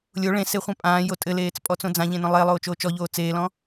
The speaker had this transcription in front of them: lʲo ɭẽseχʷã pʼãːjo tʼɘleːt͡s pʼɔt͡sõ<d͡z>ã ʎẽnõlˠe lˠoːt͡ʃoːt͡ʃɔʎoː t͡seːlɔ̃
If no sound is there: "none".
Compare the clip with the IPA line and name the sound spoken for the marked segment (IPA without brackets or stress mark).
d͡z